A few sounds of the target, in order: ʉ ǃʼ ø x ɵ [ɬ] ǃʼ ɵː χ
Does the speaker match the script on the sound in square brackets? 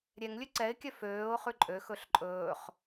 yes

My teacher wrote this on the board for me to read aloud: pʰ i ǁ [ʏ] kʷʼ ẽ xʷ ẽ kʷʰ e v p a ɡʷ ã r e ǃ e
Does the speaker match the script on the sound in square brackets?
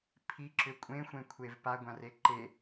yes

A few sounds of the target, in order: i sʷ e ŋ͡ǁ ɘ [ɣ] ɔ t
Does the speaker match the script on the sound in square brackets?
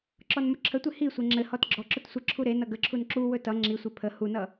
no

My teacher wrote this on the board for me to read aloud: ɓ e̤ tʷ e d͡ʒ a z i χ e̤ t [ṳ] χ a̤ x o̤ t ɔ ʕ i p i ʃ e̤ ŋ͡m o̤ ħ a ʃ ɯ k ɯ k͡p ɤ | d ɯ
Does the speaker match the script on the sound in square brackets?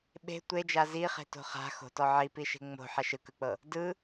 no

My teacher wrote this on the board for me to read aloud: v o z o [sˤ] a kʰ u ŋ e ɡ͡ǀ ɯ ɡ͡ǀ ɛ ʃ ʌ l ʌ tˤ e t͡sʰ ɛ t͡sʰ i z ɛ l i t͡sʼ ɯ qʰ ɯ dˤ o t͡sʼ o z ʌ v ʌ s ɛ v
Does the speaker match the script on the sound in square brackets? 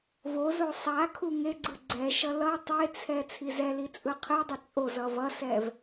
yes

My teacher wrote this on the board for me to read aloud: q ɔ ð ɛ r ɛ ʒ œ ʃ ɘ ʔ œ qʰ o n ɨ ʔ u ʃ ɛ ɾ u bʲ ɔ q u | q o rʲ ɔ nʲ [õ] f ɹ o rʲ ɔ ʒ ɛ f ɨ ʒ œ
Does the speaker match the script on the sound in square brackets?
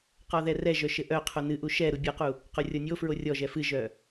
no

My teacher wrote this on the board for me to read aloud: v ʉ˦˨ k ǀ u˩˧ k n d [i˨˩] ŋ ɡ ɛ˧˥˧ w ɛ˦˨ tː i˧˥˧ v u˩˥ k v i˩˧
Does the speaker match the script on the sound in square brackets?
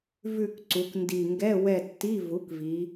yes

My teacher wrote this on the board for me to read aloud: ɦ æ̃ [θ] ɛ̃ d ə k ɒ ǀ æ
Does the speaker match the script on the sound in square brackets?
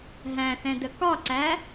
yes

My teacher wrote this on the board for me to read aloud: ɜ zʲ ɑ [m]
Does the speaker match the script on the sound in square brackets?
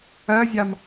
yes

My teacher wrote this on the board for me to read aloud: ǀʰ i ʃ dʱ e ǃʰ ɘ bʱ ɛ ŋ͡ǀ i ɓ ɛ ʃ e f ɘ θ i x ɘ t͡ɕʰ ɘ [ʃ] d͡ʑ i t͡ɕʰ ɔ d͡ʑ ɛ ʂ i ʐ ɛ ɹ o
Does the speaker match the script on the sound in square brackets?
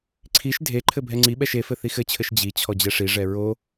yes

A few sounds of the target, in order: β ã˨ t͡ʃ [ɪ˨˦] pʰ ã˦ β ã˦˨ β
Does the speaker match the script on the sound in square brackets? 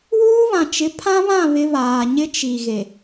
yes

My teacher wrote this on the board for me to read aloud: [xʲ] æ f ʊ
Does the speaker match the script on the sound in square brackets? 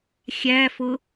yes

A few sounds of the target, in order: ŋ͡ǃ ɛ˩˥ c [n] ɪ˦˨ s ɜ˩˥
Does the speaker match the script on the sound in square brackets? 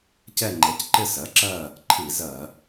no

